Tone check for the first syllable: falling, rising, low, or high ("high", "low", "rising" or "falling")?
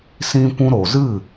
high